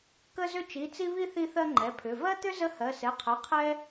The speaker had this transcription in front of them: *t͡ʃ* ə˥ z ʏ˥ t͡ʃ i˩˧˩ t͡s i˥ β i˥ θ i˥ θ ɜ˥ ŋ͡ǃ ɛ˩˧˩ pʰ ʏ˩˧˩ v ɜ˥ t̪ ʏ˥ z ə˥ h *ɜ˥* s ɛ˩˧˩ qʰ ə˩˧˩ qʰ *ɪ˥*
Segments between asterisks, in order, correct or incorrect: incorrect: k, incorrect: ɜ˩˧˩, incorrect: ɛ˥

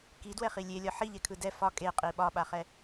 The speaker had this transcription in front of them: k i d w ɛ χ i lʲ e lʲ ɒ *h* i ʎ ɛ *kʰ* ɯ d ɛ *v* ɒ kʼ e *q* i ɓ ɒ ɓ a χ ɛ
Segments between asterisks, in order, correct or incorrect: incorrect: ħ, correct, incorrect: f, incorrect: qʼ

